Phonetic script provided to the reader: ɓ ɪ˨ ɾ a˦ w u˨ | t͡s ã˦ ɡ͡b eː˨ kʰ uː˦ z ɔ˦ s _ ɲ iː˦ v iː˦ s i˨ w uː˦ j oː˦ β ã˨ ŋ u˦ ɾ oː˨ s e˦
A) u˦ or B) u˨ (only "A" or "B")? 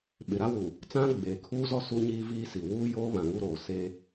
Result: A